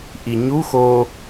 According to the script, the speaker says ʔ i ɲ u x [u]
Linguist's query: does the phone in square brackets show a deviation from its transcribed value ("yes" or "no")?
yes